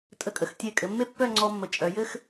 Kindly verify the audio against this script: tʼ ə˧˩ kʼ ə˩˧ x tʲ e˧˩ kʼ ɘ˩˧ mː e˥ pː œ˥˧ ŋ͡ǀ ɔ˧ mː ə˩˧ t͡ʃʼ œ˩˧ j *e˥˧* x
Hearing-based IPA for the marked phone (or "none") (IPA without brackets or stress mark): ɘ˥˧